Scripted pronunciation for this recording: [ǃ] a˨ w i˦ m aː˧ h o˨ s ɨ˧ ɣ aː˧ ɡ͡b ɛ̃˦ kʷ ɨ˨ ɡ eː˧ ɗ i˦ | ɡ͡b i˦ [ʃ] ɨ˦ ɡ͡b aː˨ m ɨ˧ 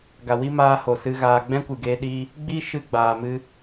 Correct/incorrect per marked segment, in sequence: incorrect: ɡ, correct

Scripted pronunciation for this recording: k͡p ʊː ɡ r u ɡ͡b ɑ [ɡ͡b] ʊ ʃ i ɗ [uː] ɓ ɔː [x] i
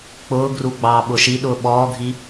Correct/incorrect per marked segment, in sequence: incorrect: ɓ, incorrect: ʊː, incorrect: ɡʱ

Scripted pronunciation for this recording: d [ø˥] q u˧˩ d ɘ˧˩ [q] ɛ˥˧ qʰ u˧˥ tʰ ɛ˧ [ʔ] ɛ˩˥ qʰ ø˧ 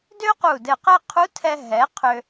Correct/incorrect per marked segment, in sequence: correct, correct, incorrect: ɦ

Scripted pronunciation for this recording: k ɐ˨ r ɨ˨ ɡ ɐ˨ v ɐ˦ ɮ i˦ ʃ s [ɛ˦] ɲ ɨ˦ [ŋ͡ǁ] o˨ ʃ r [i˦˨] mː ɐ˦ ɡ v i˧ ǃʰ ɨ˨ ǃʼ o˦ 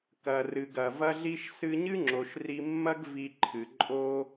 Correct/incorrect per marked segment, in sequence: incorrect: ɨ˦, correct, incorrect: i˧

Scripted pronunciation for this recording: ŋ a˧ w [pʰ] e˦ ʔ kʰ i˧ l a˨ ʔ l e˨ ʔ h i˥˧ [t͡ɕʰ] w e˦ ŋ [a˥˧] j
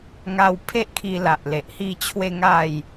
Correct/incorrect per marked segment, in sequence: correct, correct, correct

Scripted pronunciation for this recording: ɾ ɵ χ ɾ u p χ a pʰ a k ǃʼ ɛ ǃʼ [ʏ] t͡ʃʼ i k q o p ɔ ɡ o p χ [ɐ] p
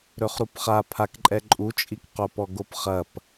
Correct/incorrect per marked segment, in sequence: incorrect: u, correct

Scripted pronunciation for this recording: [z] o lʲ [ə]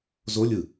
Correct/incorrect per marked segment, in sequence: correct, incorrect: ɯ

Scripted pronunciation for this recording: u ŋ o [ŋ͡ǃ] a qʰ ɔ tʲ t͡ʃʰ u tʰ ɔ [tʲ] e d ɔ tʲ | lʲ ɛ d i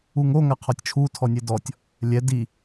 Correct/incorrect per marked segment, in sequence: incorrect: ŋ, incorrect: nʲ

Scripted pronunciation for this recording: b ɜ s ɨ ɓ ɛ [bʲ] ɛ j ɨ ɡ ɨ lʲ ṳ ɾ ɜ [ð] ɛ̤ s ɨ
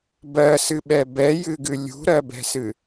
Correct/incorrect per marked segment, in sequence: incorrect: b, incorrect: b

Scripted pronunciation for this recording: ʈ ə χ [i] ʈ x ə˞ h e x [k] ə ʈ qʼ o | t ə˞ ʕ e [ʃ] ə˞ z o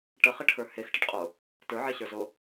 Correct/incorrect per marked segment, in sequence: incorrect: e, incorrect: ʈ, incorrect: ɕ

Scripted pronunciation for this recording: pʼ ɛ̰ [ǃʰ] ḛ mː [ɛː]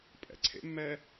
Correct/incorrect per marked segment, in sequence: incorrect: ǀʰ, correct

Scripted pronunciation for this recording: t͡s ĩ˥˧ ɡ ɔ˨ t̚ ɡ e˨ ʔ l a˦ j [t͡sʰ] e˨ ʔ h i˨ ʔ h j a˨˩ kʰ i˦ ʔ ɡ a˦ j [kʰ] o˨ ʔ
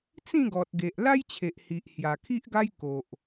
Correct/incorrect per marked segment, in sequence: incorrect: t͡ɕʰ, incorrect: k

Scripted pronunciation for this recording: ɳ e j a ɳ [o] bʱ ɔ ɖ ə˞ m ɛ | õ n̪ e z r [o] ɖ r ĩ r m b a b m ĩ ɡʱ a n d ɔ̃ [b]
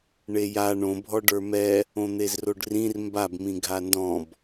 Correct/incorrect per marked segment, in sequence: incorrect: õ, correct, correct

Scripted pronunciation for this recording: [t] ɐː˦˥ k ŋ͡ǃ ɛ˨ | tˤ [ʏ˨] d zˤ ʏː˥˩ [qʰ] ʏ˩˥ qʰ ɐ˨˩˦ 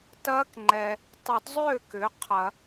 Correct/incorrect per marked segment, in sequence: correct, incorrect: ʏ˨˩˦, incorrect: k

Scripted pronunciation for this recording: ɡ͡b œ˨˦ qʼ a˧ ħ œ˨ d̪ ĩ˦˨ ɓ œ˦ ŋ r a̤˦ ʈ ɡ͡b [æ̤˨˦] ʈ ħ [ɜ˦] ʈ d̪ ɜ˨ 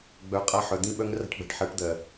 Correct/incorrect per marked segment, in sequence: incorrect: æ̤˧, incorrect: ɜ˨˦

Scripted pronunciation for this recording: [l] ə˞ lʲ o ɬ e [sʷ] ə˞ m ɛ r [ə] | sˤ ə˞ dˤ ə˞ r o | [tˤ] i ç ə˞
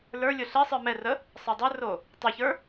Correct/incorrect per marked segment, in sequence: correct, incorrect: sˤ, correct, correct

